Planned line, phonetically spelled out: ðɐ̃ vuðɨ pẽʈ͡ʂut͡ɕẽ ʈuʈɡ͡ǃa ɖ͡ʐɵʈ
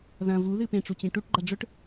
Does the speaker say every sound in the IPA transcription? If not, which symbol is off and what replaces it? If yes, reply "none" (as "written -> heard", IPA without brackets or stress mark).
none